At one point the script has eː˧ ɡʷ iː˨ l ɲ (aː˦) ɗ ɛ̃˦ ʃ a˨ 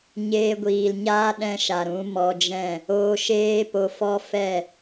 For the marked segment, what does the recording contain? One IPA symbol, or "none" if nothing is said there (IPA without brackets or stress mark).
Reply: aː˦